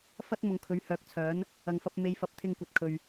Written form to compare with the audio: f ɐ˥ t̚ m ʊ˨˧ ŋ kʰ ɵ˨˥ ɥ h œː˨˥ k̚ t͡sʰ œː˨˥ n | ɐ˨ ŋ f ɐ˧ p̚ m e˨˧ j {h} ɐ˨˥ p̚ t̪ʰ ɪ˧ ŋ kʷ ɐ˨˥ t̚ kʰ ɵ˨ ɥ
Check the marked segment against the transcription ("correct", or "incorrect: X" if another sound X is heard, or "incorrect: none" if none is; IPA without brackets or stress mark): incorrect: f